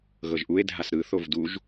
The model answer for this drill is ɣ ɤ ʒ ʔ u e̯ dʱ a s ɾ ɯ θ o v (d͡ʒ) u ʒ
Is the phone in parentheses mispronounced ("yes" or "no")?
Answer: yes